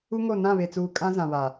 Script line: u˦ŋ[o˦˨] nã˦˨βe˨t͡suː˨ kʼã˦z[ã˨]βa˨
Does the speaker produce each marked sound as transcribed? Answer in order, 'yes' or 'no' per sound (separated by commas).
yes, yes